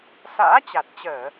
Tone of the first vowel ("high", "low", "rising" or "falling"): rising